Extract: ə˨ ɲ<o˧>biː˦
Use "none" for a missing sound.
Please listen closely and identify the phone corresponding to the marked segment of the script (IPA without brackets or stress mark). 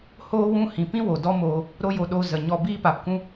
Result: ɔ˧